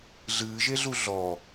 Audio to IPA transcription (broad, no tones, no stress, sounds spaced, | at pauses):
ɮ ɨː ʒ e ɮ u ɮ ɔ